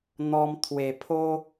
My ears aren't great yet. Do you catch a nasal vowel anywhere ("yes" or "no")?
no